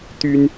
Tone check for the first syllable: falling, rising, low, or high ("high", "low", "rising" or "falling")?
high